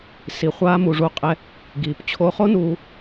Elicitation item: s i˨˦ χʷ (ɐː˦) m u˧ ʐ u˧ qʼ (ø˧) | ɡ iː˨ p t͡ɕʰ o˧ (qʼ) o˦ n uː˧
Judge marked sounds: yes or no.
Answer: no, no, no

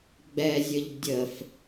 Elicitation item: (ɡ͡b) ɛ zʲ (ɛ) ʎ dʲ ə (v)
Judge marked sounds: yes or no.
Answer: yes, no, no

